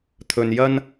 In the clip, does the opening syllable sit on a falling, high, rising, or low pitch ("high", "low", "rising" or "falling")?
low